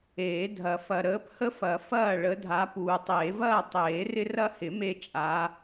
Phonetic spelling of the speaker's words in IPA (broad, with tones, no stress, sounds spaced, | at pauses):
eː˨˩˦ dʱ ɐ˨˩˦ f ɐ˨ ɾ əː˨˦ p h ə˦ f ɐ˨˩˦ f ɐː˥˨ ɭ ə˨˦ dʱ a˨˦ p uː˨ tˤ eː˨˩˦ v ɐː˥˨ tˤ eː˨˩˦ r ɪ˦ r ɐ˦ h ɪ˨˩˦ m e˦ t͡ʃʼ a˨˦